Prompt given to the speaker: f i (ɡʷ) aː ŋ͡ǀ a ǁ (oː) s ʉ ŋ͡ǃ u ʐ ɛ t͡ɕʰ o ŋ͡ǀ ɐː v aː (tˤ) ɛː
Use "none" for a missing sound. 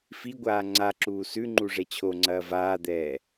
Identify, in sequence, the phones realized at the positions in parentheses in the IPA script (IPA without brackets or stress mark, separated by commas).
ɡʷ, uː, d̪